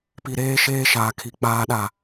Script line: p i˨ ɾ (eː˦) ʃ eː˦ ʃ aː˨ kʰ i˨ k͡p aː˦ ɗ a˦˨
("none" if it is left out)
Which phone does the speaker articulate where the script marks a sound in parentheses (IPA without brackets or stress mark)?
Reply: eː˦